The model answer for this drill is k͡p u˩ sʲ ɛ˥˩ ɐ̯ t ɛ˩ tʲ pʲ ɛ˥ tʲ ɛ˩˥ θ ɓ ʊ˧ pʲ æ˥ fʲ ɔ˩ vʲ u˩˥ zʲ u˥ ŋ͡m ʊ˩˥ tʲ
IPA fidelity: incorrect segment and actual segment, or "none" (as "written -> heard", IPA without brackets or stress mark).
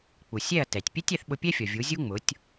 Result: æ˥ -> ɛ˥